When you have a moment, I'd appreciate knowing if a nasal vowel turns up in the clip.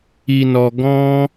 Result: yes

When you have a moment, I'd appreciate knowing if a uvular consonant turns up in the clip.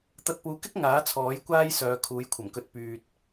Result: no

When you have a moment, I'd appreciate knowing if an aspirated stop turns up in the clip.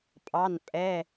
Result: no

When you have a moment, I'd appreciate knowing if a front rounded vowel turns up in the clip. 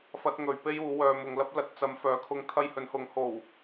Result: yes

